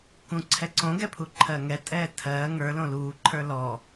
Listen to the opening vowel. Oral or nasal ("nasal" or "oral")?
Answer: nasal